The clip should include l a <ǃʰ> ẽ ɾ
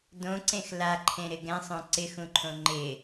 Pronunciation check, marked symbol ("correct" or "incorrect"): correct